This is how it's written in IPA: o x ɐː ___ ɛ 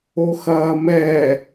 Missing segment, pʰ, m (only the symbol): m